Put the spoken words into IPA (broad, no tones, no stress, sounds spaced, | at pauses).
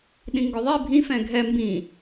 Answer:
ɗ ĩ ŋ ɡ ɵ ðˤ i bʱ ĩ f ɛ̃ ɡʱ ɛ m b ĩ